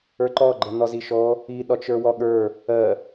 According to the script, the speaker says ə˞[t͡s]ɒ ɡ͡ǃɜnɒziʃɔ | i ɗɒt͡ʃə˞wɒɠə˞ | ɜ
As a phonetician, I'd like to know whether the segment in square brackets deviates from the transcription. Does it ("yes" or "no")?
yes